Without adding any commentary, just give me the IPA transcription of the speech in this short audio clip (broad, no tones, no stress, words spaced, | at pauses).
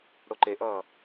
ɽoǃeʔʌː